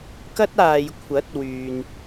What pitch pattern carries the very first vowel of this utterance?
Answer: high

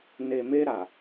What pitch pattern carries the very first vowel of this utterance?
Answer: low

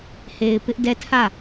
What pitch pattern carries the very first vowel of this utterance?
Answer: low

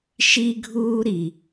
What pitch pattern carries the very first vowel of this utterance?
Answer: high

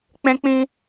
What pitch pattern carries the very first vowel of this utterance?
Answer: high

